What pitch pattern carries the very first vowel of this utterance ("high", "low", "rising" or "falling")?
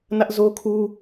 high